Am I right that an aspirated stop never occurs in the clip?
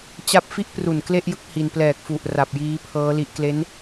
no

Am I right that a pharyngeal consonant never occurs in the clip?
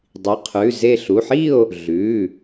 no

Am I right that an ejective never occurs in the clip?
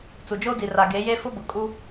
no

